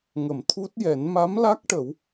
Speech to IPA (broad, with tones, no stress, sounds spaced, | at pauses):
ŋ ə˨˩˨ m t̪ʰ u˦˥ t̚ j ɛ˨˩˦ n m a˧˥ m l a˦˥ k̚ ʈ ə˨˩˦ w